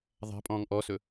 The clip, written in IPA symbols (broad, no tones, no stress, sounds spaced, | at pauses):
ðˤ a̤ pʼ ɔ̃ː ŋ ʔ ɔ s ɵ